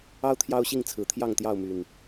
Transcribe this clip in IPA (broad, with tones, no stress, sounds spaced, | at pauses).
ɑ˦ ʊ̯ t̪ʰ j ɑ˦ ʊ̯ ɕ i˥˨ ŋ t͡sʰ ɹ̩˨˩ t̪ʰ j ɑ˥˨ ŋ t̪ j ɑ˥˨ ʊ̯ m y˨˩ n